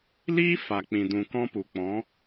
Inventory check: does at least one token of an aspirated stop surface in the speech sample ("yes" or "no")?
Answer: no